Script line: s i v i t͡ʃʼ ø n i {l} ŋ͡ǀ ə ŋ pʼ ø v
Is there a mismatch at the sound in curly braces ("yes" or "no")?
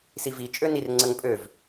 yes